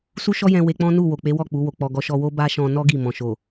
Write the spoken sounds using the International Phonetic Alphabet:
su˦ʃɔ˦jɛ̃˧ we˧k͡pɔ̃˦ nu˦˨ wo˨k͡pe˨˦wɔ˦˨ k͡pu˨˦wo˧k͡pɔ˧ ɡɔ˧ʃɔ˧ wo˦ba˦ʃɔ̃˧ nɔ˦ ɡi˦˨ mɔ̃˨ʃo˨

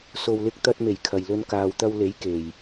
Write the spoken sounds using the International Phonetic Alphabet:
so˨wlɪ˧k̚t̪ɐ˧t̚me˨˩j kʰɐ˨j lɵ˧n kaː˨wt̪ɐ˧w le˨˥j ke˨j

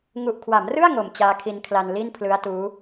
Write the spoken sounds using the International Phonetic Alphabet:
ŋu˨˩ʔkʰwa˩˦mrɯ˥˩a̯ ŋo˨˩m t͡ɕaː˦˥kʰi˧nkʰla˧n li˥˩npʰlɯ˦˥a̯tuː˦˥

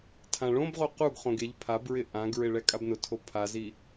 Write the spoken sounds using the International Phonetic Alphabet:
tʰãɭõbʁo quɡχõɡ eʎ pʰabɹɪ ʔãɡɹɪ ɭɛkʼabnʊtʰo pʰazi

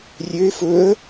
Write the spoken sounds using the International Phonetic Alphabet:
rʲøɪ̯ fɵə̯

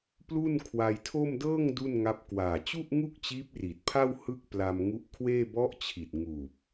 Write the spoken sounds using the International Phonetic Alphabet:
plu˥˩nkʰwa˧jtʰo˥˩m dɤː˥˩ŋ du˥˩nŋa˦˥p̚ kwaː˨˩t͡ɕu˥˩ʔ ŋu˥˩k̚t͡ɕiː˦˥p̚ri˨˩t̚ pʰa˥˩w hɯ˥˩k̚pla˧mŋu˦˥ʔkʰweː˥˩ bɔ˦˥ʔt͡ɕʰi˨˩t̚ ŋuː˨˩p̚

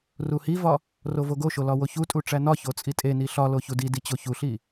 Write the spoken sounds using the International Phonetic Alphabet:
ruhivɒ | rovoɡoʃo lɒwoçutʼu ʈ͡ʂænɒço t͡sʼitʼeni ɬɒlo çudidi t͡ɕoçuɬi

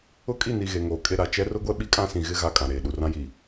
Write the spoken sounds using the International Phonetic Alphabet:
ʊ˦kʼi˦˨ni˨ ɣe˨ŋoː˨kʼe˦ɾa˨ t͡ʃɛ˦rʊ˦ɡʷɛ˦ ɓi˦kʼã˦ sĩ˨ɣɪ˦ ɣa˦kʼã˨ɾeː˨ ɗu˨rã˦ji˨

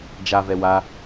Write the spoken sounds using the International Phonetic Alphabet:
d͡ʒavɛ wa

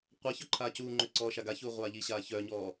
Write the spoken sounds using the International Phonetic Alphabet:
qʷaçœ ǃʰaːcuːŋ͡ǃø ǀɔːʃaɡaçuː ʁʷaːʎiɕaː çœːɲɔː

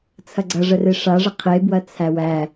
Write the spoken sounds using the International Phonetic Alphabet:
t͡sʰɐɡ͡ǀɐʐəre ʂaʐə qʰe bwɐt͡sʰæwæ

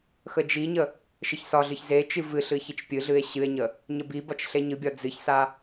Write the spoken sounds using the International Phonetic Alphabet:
xəd͡ʒiɲə | ʃəçsɒɮɨç zet͡ʃɨ vɨ ɬɨçit͡ʃpʲɨɮɨe̯ ɕɨe̯ɲə | ɲəbibɒt͡ʃ ɬeɲɨbʲɒ d͡zɨçsa

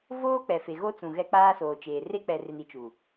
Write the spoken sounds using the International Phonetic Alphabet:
voː˦ k͡pɛ˨fe˨ɣo˦t͡sũ˨ ɣɛ˦k͡paː˦soː˨t͡ʃeː˨ re˦k͡pɛ˨re˨n i˨t͡ʃu˨

